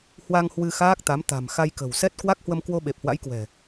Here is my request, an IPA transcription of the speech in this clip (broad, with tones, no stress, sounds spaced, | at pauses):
h w a˧ ŋ h w ɨ˧ x aː˦˥ k̚ t̪ a˨˦ m t̪ a̤˨˩ m x a˧ j k ə̤˨˩ w s ɛ˦˥ t̚ k w a˦˥ k̚ h w ə˧ m k w o˧ ɓ e˨˩ p̚ h w a̰˧˥ j k w ɛ̤˨˩